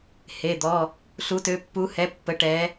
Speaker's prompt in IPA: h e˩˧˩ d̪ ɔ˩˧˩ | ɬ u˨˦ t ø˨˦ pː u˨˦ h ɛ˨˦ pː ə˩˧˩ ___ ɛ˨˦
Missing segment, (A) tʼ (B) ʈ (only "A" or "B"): B